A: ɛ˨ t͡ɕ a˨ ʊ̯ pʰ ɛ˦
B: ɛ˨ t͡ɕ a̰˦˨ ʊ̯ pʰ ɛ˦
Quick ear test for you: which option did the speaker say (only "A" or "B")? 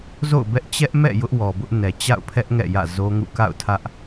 B